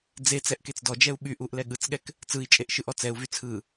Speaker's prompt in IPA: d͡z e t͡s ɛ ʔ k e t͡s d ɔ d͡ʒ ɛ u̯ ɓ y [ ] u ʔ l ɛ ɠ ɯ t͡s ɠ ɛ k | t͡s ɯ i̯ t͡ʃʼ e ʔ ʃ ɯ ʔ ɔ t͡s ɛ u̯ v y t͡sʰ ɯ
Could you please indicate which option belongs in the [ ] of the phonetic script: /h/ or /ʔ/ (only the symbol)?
ʔ